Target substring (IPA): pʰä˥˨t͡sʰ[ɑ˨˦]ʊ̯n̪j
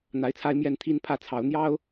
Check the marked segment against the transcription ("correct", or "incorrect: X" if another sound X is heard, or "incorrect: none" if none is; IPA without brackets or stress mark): correct